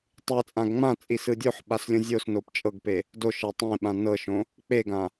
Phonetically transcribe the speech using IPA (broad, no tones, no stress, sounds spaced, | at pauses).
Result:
tˤ ɯ t͡sʼ ã ɡ ŋ͡m ã t͡sʼ i s ɯ dʲ o ħ ɓ a s lʲ õ zʲ o s n o p t͡ʃʼ ɤ ɡ p e | d o ʃ ɤ tˤ ẽ ɓ ã n ɤ ʃ õ | k͡p e ɡ ã